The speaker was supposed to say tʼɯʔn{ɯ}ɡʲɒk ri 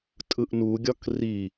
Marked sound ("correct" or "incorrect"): incorrect